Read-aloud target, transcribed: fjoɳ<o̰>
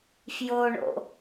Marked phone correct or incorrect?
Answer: correct